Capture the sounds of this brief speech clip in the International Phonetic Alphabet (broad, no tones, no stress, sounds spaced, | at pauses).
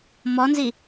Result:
m ɔ n z i